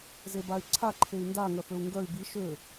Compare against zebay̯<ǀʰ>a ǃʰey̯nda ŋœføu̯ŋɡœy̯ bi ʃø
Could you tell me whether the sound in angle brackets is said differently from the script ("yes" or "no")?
no